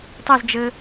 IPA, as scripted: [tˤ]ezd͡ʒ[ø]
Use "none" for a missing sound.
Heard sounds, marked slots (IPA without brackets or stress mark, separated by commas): tˤ, ɘ